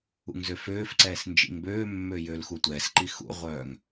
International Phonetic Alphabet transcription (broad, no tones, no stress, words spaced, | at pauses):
ṵŋzøføːfǀɛːs nd͡ʒḭŋbøːmːø jølxutʷɛːsǃi xṵʁʷœːŋ